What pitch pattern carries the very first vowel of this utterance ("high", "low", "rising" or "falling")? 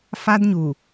high